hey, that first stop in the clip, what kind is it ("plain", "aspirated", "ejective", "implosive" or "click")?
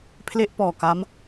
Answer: aspirated